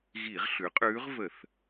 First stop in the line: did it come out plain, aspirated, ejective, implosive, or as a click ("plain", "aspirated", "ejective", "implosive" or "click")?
ejective